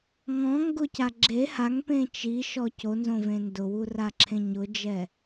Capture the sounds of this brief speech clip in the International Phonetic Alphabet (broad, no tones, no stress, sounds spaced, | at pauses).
ŋ ɔ̃ ŋ ɡ ʊ c a ɡ͡ǁ e h a ŋ p ẽ t͡ʃ i ʃ ɔ c o n z õ v ẽ n d ʊ w u r a ǁʰ ẽ ɲ ʊ d͡ʒ ɛ